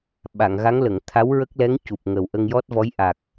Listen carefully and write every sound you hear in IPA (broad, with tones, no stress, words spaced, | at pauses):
ɓa˨˩˨ŋɣa˧˥ŋlə˨˩˨ŋ t̪ʰa˧˥wɹə˦˥k̚lɛ˧˥ŋ cu˨˩p̚ŋə˨˩w ʔə˧ŋjɔ˦˥t̚vɔ˧˥j ʔa˨˩k̚